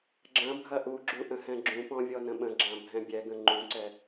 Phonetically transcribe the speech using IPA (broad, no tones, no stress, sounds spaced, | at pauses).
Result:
ɡ͡ǁ ɐ̃ bʱ ɐ ʔ u ɡ͡ǁ u ʔ ə̃ h ɛ̃ ɡ͡ǁ ũ p ɔ̃ vʲ ɔ n ə̃ ɓ ə̃ ɡ͡ǁ ã bʱ ɛ̃ bʲ ɛ ɡ ə̃ ŋ͡ǃ ũ ǀ ɛ